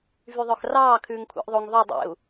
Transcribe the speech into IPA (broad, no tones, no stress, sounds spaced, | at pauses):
v y ðˤ œ x r ɑː kʰ ʉː ŋ kʷʰ ɛ̰ ʔ ðˤ o ŋ ðˤ ʉ dˤ ḛ u̯